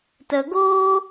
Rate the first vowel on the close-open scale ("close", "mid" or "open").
mid